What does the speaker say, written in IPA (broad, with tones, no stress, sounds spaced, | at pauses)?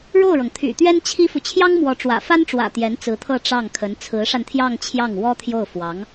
ɻ o˥˩ ʊ̯ ɻ ɤ˩ ŋ t̪ʰ y̰˨˩ t̪ ɥ ɛ˥ n t͡ɕʰ i˥ f u˨ t͡ɕʰ j ɑ˥ ŋ m w ɔ˧˥ ʈ͡ʂ w ä̰˨˩ f a˥ n ʈ͡ʂ w ä̰˨˩ t̪ j ɛ˧˥ n t͡s ɹ̩˧˥ t̪ʰ ɤ˥˧ ʈ͡ʂ ɑ˥˩ ŋ kʰ ə˧˥ n t͡sʰ ɹ̩˧˥ ʂ a˧ n t̪ʰ j ɑ˥˧ ŋ t͡ɕʰ j ɑ˥˩ ŋ w ɔ˥ t̪ʰ j o˥˩ ʊ̯ f w ɑ˧˥ ŋ